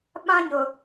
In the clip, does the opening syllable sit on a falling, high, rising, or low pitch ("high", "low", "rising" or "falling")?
high